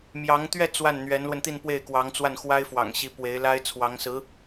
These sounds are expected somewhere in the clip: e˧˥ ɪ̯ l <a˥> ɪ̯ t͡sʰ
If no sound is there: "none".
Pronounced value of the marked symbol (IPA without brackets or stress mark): a˥